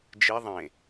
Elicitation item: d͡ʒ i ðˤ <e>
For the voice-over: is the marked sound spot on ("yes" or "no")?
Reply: no